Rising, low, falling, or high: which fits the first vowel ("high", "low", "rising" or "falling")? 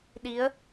rising